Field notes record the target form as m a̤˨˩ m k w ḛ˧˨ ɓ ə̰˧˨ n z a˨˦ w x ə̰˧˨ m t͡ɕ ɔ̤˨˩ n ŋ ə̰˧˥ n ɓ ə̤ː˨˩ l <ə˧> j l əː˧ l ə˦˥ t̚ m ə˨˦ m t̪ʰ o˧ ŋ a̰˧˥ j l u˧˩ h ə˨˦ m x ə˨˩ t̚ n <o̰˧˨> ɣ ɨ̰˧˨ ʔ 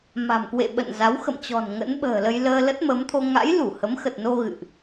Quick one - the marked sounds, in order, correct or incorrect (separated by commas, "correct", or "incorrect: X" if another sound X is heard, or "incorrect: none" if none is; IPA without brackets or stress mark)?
correct, incorrect: o˧